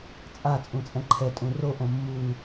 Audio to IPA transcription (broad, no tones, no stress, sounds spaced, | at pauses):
t͡sʼ a t͡sʼ ũ t͡sʼ ɛ̃ ǃʰ ɛ tʼ ũ r o ʔ õ mː u